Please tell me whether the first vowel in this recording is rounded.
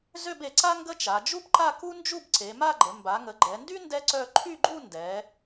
yes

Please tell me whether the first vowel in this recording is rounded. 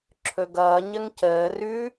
yes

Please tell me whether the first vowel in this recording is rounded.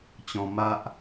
yes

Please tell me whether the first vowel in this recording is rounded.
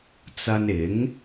no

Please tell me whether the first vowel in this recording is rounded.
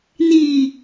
no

